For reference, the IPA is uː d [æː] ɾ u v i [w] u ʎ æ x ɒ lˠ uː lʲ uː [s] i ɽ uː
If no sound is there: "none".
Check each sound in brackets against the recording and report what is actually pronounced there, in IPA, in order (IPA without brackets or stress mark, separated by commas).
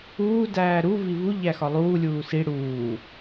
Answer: æː, v, s